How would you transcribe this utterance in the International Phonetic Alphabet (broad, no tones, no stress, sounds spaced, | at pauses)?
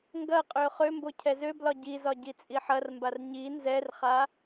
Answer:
ŋ ɡ ɐ qʼ ø χ ø m b o cʰ ɛ z ø b l ɒ ɟ i z ɒ ɟ i t͡sʼ i ħ ɐ r m b a r ɲ i n z ɛ r χ a